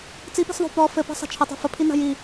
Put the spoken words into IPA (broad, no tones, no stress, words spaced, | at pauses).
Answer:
t͡sipi̤sðˤo̤ pɔ fɘpa̤ sˤa̤t͡ʃʰɘ tˤa̤fəpʰina̤ ji